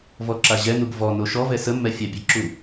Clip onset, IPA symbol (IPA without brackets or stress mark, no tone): v